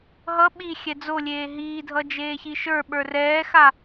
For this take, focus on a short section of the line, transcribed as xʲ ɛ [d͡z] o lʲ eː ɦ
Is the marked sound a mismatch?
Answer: no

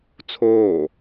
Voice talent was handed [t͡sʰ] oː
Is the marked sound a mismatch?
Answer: no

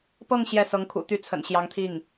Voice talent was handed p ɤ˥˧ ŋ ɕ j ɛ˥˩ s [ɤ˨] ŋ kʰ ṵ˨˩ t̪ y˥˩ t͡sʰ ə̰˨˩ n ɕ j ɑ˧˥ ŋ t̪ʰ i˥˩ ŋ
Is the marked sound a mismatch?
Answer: yes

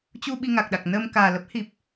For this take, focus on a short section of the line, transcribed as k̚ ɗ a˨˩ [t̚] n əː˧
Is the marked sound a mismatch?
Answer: yes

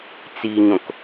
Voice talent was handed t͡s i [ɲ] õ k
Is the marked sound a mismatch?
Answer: no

